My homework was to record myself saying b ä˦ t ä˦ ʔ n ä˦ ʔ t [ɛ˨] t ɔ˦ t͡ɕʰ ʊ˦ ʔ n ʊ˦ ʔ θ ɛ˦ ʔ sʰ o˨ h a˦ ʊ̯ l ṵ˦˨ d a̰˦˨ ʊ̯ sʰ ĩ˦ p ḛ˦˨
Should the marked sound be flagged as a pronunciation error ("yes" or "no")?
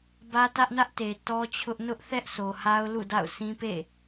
yes